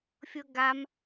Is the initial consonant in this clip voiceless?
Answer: yes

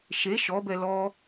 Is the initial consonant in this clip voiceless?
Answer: yes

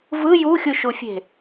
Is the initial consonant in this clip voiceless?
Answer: no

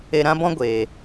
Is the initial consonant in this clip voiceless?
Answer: no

